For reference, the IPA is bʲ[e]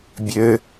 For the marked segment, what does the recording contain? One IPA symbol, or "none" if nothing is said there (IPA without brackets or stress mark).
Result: ø